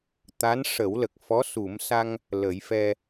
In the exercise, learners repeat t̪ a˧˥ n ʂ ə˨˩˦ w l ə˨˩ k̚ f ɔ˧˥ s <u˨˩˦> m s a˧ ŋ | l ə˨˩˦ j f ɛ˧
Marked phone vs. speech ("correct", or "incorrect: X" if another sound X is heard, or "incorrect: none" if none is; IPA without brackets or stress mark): correct